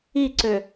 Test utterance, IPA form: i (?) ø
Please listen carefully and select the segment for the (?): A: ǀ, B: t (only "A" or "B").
A